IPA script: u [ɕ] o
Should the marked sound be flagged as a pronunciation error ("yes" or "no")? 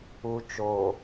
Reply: yes